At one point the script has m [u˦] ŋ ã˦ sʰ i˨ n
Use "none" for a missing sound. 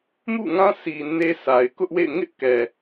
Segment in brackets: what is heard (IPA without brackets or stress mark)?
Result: ṵ˦˨